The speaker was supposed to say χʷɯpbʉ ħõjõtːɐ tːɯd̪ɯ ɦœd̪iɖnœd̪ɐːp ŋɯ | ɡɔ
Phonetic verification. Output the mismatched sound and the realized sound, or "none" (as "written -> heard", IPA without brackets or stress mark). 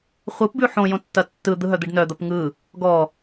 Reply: ɐː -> ɐ